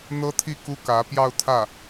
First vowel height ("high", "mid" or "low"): mid